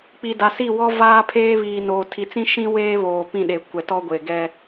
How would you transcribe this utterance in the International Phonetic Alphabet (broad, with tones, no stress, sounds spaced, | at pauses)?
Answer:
k͡p i˨ d a˨ s i˦˨ w ɔ˦ v aː˦ pʰ eː˦ β iː˨ n oː˨ tʰ i˨ t͡s ĩ˦ ʃ ĩ˦ w eː˦ β oː˨ p ĩ˦˨ ɗ e˨ kʷ ɛ˨ t ɔ˦ ɡʷ e˨ ɡ ɛ˦